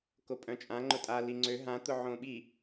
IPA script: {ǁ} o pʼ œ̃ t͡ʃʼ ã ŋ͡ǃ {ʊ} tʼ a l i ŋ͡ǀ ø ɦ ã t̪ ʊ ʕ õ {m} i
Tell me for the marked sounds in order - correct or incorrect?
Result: incorrect, correct, incorrect

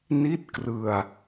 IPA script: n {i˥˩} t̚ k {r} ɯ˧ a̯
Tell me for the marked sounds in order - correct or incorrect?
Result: correct, correct

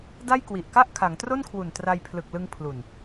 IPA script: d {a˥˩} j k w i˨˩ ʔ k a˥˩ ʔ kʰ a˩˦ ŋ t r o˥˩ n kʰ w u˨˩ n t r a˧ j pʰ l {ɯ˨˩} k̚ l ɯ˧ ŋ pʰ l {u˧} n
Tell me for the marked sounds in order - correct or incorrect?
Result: correct, correct, incorrect

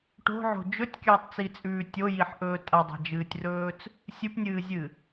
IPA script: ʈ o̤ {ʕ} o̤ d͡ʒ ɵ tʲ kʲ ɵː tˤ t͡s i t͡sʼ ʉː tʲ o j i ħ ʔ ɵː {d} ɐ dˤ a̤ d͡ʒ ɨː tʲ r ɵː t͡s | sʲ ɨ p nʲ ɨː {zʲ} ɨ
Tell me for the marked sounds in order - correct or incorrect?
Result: correct, incorrect, correct

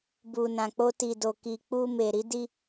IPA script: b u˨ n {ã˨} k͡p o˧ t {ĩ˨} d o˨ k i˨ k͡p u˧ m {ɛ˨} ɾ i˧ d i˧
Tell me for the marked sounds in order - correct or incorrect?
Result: correct, incorrect, incorrect

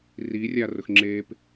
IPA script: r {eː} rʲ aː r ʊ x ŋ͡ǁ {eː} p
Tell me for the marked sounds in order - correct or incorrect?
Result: incorrect, correct

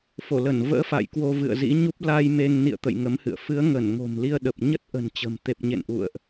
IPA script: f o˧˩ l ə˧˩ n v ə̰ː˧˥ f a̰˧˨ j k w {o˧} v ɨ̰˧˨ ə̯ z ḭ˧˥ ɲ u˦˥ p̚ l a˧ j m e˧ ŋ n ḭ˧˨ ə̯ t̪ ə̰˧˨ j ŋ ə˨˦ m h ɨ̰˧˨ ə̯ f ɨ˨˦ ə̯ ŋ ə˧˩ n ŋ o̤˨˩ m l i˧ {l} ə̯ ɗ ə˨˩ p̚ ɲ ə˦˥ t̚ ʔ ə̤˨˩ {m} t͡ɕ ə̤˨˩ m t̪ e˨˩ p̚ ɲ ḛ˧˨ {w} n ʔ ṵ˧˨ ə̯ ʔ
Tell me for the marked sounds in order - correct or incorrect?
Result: correct, incorrect, incorrect, incorrect

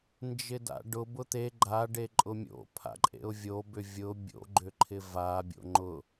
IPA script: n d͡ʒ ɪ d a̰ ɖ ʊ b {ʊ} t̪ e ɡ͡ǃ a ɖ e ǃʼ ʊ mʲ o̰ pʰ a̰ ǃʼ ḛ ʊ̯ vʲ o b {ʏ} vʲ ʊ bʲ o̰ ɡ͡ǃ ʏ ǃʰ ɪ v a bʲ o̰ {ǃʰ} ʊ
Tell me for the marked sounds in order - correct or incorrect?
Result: correct, correct, incorrect

